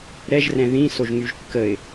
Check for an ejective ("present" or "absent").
absent